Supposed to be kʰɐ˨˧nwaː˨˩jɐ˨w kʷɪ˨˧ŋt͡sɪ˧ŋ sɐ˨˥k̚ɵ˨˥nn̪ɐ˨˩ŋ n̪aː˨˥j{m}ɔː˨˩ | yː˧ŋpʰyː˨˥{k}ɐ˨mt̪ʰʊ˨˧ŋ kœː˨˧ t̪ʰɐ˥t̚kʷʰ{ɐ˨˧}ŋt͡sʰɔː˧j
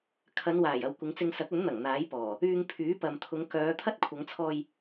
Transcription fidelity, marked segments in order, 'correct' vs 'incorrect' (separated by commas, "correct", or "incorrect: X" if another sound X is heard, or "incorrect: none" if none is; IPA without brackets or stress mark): incorrect: p, incorrect: p, correct